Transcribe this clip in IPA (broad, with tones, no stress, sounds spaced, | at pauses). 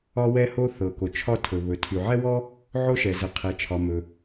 ɒ˥ w ɛ˥ h o˥ θ ɤ˩ k o˩ t͡ʃʰ ɒ˥ tʰ ɵ˩ β ɵ˩ tʰ y˩ ʕ ɛ˥ w ɔ˥ | ʕ o˥ ʃ ɛ˩ z ə˩ qʰ ɛ˩ t͡ʃʰ ɒ˩ m ɵ˩